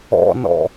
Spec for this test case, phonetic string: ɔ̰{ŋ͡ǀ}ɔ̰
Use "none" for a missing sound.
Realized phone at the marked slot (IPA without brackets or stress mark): n